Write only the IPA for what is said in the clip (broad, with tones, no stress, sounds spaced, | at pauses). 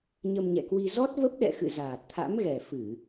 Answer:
ɲ ə˧ m ɲ ɛ̰˧˨ k w i˧ z ɔ˦˥ t̚ v ə˦˥ p̚ ɗ ɛ̰˧˨ x ɨ̰˧˨ z aː˨˩ t̚ t̪ʰ a̰˧˥ m ɣ ɛ˨˩ f ɨ˧˩˨